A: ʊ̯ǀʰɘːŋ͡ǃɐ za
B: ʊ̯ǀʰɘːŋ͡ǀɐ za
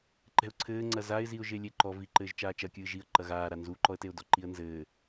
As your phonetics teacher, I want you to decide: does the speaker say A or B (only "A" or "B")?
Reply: B